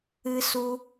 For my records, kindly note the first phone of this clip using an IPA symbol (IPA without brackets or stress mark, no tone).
ɨ